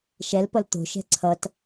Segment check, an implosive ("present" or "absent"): absent